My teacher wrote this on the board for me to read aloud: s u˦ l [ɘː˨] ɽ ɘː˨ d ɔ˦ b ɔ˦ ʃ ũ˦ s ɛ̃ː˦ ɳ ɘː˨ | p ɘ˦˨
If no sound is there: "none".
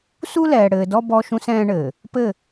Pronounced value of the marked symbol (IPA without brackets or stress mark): ɛː˨